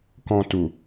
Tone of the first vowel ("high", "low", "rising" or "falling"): low